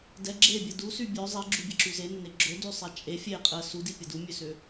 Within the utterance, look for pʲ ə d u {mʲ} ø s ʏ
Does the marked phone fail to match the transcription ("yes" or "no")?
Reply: no